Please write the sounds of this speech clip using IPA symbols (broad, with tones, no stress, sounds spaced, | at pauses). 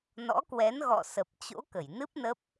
n ɔ̰˧˥ k w ɛ˨˦ n ɣ ɔ̰˧˨ s ə˨˩ p̚ t͡ɕ o̰˧˥ k ə˧˩ j n ɨ˦˥ p̚ n ə˦˥ p̚